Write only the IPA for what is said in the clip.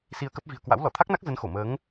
s i˧ ə̯ k ə˦˥ p̚ v i̤˨˩ ə̯ k w a̰˧˥ w l ɔ˧˩ t̪ʰ a˦˥ k̚ n a˦˥ k̚ z ə˨˦ n x o˧˩ m əː˨˦ ŋ

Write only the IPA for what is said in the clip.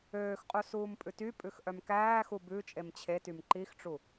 øː x qʼ u s uː m pʼ ʉ t y pʼ ʉ x ʔ œ m k æː x u b ʉ t͡ʃʼ e m t͡ɕʰ e t y m ǃ i x ʈ͡ʂ u

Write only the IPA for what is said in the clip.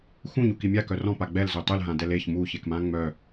x ũ ɲ u k i mʲ a k œ r ɔ̃ p a ɡ͡b ɛ l z ø tˤ y l ɦ ã d ɛ l e ç m u ç e k m ã ŋ͡m œ

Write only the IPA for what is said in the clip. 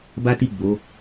b a˦ t i˦˨ ɡ͡b o˨˦

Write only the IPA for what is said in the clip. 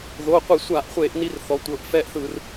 ð o˩˧˩ qʷ i˧˩˧ sʷ a˧˩˧ ʔ χʷ e˧˩˧ ʔ n i˦ r θ ɔ˩˧ tʷ ɤ˩˧˩ ʔ f ɛ˦ ʔ θ ɯ˧˩˧ r

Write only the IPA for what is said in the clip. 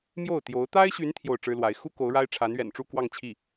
m j o˥˩ ʊ̯ t̪ j o˧˥ ʊ̯ t̪ a˥ ɪ̯ ɕ y˧˥ n t̪ʰ j o˥˩ ʊ̯ ʈ͡ʂ ɻ̩˥ l w a˧˥ ɪ̯ x u˥ k o˧˥ ʊ̯ ɻ a˥ ɪ̯ ʈ͡ʂʰ a˧˥ n ɥ ɛ̰˨˩ n ʈ͡ʂ u˥˧ k w ɑ˥˧ ŋ t͡ɕʰ i˥˩

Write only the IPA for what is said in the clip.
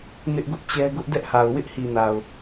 n ɪ˦ ʔ ɡ ʊ˦ ʔ t͡ɕ ɛ˦ ɡ ʊ˦ ʔ d ɛ˦ ʔ h a˨ ʊ̯ w ɪ˦ ʔ h i˨ n a˨ ʊ̯

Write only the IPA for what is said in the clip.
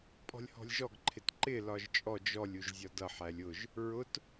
pʼ ɔ̤ lʲ h ɔ̤ lʲ ʒ ɔ ɡ ǃʰ ɪ t ǃ ɪ l ɒ ʒ t͡ʃʼ ɔ d͡ʒ ɔ lʲ u ʒ zʲ ɒ d ʌ ħ æ lʲ ʊ ʒ | ɹ ʊ t

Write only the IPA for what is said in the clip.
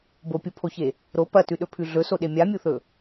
b o pʲ u pʰ o ç e | ɾ o p ɐ t ʉ ɗ ɵ pʰ ʉ ɮ ɵ s o ɗ e mʲ a mʲ u θ ɵ

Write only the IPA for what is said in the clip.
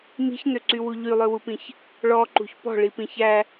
m i̤ ç n ø ǀ y w u ʎ y lˠ ø w u p ĩ ç | ɭ ɔ ǃ ṳ ç p ɔ̤ ɭ i p ĩ ç æ

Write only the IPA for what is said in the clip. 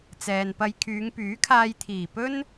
t͡s ɛː˨ n p ɐ˧ j kʰ yː˨˧ ŋ p yː˨˥ kʰ aː˧ j t̪ʰ iː˨˩ p ɵ˥ n

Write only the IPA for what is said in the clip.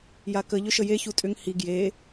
j a k ə ʎ ʏ ʃ ə j e ç u tʼ ʏ ŋ h i ɡ j e

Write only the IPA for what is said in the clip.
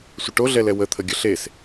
sʷ ə ʈ o ɮ ɛ l ɛ w ə t̪ʰ ə ɡʲ ə ɬ e s

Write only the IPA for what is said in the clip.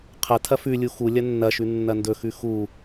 qʰ ɐ tʰ ɐ f ʉ lʲ u x u lʲ ɐ nː ɐ ʃ ʉ nː ɐ n d ɵ x ʉ x u

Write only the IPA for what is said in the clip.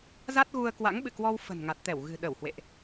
z a˦˥ t̚ ɣ u˧ ə̯ k w a̰˧˥ ŋ ɓ ɨ̰˧˨ k w ɔ˧ w f ə̤˨˩ n ŋ a˨˩ t̚ t̪ ɛ˧˩ w ɣ ɨ̤˨˩ ɗ ə˧˩ w h w ḛ˧˨ ʔ

